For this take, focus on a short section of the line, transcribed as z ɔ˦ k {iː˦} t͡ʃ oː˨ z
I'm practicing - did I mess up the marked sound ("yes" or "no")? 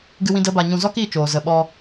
yes